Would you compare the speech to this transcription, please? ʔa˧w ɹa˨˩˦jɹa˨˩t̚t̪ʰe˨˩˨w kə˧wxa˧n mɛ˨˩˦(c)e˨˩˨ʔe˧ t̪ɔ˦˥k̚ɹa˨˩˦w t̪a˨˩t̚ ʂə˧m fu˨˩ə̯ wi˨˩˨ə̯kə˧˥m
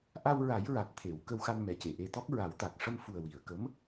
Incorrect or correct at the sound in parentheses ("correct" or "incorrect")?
correct